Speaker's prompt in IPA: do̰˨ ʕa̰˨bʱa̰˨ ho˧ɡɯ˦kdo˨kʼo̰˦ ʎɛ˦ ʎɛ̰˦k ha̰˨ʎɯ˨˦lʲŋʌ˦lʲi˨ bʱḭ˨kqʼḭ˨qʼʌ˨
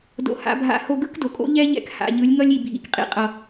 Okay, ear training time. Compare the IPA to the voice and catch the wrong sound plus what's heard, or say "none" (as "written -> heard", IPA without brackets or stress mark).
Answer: ʕ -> h